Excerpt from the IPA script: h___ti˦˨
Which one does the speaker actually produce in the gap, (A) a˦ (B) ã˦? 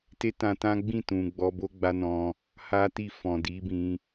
A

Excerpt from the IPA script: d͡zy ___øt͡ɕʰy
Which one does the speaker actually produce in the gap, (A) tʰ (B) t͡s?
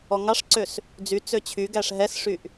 B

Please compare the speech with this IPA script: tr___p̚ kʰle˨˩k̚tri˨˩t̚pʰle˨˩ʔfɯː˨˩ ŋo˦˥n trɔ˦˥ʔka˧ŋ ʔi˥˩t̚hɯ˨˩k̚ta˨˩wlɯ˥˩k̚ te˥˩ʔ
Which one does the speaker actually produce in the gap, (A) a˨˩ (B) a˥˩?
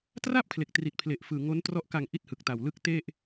B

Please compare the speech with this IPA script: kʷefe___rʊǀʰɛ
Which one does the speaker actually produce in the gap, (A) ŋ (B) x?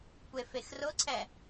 B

